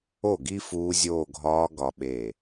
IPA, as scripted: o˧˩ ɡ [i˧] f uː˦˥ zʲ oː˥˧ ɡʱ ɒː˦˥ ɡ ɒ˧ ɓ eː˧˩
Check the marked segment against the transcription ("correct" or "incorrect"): correct